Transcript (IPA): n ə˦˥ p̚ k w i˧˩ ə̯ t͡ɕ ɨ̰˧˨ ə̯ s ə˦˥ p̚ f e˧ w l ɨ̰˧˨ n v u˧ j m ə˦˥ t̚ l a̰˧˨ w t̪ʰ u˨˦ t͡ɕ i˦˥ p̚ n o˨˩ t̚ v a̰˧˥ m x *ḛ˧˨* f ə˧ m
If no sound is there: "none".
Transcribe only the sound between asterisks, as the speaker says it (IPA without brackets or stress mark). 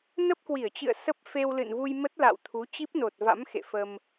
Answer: ḛ˧˨